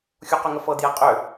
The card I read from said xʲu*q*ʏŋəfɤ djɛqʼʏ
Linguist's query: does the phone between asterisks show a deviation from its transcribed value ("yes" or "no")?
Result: no